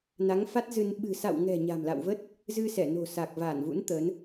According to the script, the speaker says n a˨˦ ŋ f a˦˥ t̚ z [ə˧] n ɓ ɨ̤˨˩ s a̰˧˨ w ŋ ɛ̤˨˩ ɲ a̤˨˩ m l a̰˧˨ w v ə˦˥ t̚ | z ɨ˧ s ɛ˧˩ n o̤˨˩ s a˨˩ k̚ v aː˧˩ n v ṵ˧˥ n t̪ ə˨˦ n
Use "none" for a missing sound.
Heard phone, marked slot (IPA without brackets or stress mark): ɨ˧